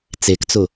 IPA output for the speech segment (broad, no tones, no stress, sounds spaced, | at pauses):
t͡s e k t͡s ʊ